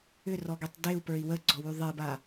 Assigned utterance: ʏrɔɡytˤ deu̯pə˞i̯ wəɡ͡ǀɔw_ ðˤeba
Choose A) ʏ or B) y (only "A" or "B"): B